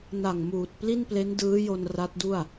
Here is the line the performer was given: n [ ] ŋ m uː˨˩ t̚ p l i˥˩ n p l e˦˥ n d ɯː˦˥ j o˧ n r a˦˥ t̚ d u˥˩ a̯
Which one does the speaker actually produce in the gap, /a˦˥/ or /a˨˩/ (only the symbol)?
a˨˩